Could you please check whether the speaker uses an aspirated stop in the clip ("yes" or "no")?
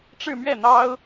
no